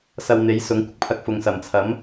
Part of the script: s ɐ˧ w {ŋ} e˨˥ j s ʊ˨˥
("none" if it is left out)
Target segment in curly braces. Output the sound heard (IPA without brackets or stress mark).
n̪